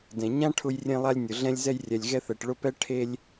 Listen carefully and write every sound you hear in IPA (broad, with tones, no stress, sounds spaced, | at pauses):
d ɛ̃˩ ɲ ã˥ ʈʰ ʊ˦ j rʲ ẽ˦ lˠ a˦ lʲ nʲ ʊ˩ ɮ ɛ̃˦ lʲ z ɛ˦ j rʲ ɛ˨ lʲ ɣ ɛ˦ θ ɛ˨ ʈ ɭ ʊ˦ p ɛ˥ ʈʰ e˦ lʲ